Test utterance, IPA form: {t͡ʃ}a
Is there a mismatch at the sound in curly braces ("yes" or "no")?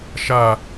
yes